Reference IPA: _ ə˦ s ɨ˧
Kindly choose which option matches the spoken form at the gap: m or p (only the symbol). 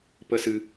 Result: p